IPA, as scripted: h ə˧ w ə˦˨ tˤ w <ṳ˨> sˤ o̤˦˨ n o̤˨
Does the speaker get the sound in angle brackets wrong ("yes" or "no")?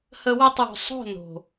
yes